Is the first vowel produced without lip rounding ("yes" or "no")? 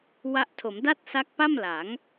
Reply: yes